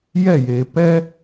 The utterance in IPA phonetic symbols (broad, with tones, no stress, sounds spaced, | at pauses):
j ɛ˦˨ j e˨ p ɛ˦